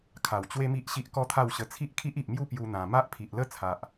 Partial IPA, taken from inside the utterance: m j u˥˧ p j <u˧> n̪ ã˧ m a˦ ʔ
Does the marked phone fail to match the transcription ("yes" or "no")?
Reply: yes